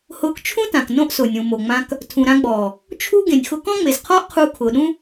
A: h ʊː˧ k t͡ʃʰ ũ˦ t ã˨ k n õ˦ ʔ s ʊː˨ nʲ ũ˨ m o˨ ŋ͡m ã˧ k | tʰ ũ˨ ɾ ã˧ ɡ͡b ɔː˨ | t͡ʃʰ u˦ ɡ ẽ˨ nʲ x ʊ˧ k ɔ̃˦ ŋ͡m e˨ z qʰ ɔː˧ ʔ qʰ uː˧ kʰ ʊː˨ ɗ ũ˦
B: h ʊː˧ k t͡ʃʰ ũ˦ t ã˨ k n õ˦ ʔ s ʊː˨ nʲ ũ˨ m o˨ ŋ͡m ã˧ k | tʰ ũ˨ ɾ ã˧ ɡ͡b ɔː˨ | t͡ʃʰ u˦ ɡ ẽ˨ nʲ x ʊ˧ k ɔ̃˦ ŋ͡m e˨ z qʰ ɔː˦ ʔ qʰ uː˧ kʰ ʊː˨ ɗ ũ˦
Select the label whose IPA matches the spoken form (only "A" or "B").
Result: B